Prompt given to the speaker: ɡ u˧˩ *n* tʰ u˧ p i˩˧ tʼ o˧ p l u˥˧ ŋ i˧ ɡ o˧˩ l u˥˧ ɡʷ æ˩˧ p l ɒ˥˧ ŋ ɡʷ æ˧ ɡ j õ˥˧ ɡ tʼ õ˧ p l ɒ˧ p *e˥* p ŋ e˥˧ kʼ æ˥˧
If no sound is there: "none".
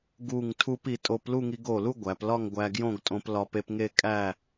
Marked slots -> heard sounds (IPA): ŋ, e˧

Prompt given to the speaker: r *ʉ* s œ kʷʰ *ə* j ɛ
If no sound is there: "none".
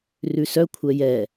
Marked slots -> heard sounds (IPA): ʉ, ɛ

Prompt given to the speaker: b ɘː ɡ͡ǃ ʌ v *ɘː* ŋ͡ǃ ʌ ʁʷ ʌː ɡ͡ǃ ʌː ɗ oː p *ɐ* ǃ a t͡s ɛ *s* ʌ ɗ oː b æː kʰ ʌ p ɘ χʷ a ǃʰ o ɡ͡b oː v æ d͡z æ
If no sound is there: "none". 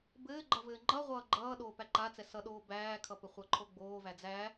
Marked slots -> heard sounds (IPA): ɘː, æ, s

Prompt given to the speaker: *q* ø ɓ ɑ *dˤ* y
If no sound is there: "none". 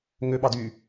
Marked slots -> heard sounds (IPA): ŋ, d

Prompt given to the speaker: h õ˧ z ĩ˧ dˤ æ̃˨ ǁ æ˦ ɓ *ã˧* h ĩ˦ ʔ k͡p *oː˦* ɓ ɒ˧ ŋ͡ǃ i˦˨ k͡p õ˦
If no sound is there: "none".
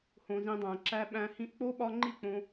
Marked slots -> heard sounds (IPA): æ̃˧, o˦

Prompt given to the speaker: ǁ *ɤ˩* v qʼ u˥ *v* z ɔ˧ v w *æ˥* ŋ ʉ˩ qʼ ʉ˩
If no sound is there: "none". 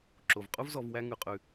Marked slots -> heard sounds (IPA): o˩, v, æ˥

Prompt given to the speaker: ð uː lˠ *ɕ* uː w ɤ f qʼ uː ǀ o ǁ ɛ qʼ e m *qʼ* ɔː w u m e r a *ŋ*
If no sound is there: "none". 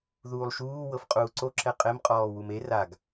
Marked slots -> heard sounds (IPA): ʃ, qʼ, ɡ

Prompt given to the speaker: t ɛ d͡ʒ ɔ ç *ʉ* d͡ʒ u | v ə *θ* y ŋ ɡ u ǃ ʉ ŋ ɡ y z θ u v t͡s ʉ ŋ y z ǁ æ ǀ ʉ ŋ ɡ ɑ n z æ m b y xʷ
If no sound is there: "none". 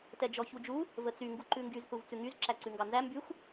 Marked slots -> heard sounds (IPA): u, t͡s

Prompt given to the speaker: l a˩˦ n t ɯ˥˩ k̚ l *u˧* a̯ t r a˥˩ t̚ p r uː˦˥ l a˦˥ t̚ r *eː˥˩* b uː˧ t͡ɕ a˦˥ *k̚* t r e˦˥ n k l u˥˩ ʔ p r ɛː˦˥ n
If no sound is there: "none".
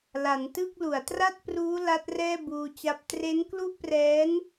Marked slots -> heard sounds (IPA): u˩˦, ɛː˥˩, p̚

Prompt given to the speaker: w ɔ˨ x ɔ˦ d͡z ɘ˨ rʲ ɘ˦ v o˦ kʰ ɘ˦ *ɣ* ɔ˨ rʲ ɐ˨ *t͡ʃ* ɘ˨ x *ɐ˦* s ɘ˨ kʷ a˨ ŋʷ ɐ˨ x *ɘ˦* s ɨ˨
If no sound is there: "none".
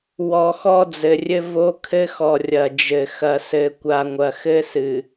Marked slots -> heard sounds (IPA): x, d͡ʒ, ɐ˨, ɘ˦

